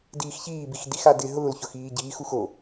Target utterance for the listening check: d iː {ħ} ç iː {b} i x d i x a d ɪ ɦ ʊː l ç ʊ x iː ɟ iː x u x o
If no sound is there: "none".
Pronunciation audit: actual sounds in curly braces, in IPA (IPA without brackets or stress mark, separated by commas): x, b